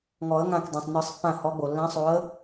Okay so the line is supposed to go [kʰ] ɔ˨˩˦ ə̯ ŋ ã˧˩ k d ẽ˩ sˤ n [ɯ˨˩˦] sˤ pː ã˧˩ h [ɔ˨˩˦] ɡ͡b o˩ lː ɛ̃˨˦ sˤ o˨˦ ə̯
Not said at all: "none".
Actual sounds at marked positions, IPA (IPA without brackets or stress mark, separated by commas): ŋ, ɯ˨˩˦, ɔ˨˦